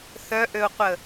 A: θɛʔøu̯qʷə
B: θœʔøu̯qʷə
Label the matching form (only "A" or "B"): B